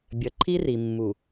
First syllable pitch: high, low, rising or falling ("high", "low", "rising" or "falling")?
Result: low